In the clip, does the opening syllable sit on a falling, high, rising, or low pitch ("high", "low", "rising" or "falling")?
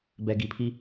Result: low